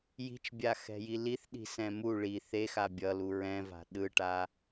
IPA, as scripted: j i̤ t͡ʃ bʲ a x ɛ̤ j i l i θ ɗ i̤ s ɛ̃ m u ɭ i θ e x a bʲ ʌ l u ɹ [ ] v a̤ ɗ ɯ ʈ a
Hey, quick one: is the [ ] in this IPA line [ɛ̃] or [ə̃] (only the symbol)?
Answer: ɛ̃